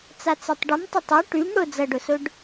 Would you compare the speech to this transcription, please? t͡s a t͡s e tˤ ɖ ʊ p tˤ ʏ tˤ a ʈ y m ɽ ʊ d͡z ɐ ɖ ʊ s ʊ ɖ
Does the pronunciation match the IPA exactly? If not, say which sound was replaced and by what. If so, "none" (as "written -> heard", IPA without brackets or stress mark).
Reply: p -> m